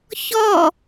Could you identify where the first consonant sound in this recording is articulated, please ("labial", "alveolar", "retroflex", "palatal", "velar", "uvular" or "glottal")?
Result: palatal